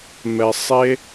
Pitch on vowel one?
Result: low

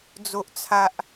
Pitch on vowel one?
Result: high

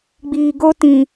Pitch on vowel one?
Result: low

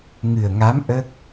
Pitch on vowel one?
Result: low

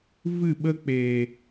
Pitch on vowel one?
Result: falling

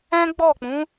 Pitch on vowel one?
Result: high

